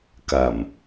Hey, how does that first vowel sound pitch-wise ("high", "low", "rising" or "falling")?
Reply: low